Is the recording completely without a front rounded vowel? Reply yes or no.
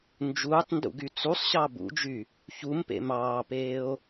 no